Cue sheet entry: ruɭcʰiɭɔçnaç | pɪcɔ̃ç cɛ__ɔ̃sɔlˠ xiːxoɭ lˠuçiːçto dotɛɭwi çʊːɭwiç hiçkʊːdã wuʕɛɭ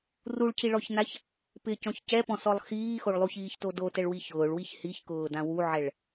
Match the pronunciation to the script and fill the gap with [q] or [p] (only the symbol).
p